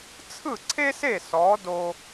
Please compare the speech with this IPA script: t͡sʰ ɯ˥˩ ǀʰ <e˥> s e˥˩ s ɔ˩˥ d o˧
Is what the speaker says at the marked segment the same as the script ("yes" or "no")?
yes